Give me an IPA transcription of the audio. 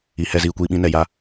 i˨ h ɛ˧ z iː˨ kʷ iː˧ ɓ ĩ˧ n ɛ˨ j a˧

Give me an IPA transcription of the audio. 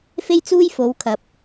f e˥ j t͡s uː˥ j f o˨˧ w kʰ ɐ˨˥ p̚

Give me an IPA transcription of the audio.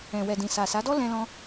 ɛ̃˨ w ɛ˨ d ĩ˨ s a˨ s a˨˦ d ɔ˦ l ɛ̃˧ l ɔ̃˧

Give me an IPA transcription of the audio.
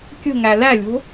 kʲ ə̤ ŋ æ l æ lʲ o̤

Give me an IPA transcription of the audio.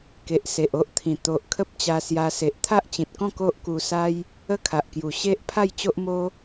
k e˨ ʔ s e˨ ʔ o˦ ʔ t̪ʰ ĩ˨˩ t̪ o˨ ʔ kʰ ə˦ p̚ t͡ɕ a˧ s j a˧ s e˨ ʔ t̪ʰ a˦ ʔ t͡ɕ ĩ˨ t̚ k ɔ̃˥˧ k o˦ ʔ k u˧ s a˦ j | ə˦ kʰ a˨ ʔ k j u˨˩ ɕ e˦ ʔ pʰ a˥˧ j t͡ɕ o˦ ʔ m o˦

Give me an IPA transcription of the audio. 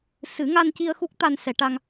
s ɨ˨˩˦ ŋ a˧ n c i˧ ə̯ x u˦˥ k̚ t̪ a˧ n s ɛ˨˩˦ ʈ a˧ ŋ

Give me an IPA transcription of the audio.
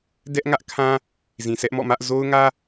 d ɛ˦ ʔ ŋ ä˦ ʔ kʰ ã˦ | z ĩ˨ sʰ ɛ˦ ʔ m ɔ̰˦˨ m ä˦ ʔ z o˦ ʊ̯ ŋ ä˦

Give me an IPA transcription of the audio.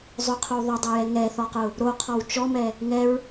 zˤ ʊ qʰ o w ðˤ ʊ dˤ o j ɛ ŋ ɛ θ ɔ q ʊ | ɾ o qʰ ɔ w t͡ʃ ɔ m ɛ | ŋ ɛ ɹ

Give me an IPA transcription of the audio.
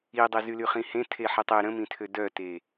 i dˤ e z y l y χ ĩ h ẽ tʰ e ħ i tˤ e ɾ ə̃ m ĩ tʰ ø d œ t e

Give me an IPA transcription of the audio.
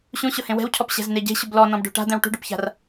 ɕ ũ ɕ ʊ h ẽ w ɛ̤ w cʰ ɔ p ɕ ɛ̤ z n e ɟ e̤ ɕ ʊ b l ɔ n ɔ̃ b ɖ o̤ ʈ a̤ d̪ ɛ̃ w ʈ ṳ ɖ ʊ p ç a̤ r

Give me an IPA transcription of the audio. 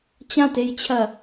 t͡ɕ ã t e j t͡ɕʰ ɐ

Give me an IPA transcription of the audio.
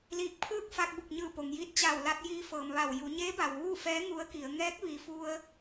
l iː˧˩ k̚ pʰ ɯː˥˨ k̚ f a˧ k̚ b u˧˩ k̚ ɲ ɯː˧˩ p o˩ ŋ j iː˧ t̚ t͡ɕ a˧˩ w l a˧ t̚ j iː˧ f ɤː˩ m ʋ a˧˩ w j u˩˧ ɲ eː˧˥ b a˩ w ʋ uː˥˨ f ɛː˧˥ ŋ u˧˥ ə̯ k i˩˧ ə̯ ŋ ɛː˧˥ k̚ ʋ i˩ f u˧ ə̯

